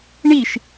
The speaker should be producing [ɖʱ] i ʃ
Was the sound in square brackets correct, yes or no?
no